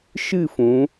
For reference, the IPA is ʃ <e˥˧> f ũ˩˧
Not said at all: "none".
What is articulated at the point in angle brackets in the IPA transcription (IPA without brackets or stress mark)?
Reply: ɨ˥˧